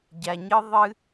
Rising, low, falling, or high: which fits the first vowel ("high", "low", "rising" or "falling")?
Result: low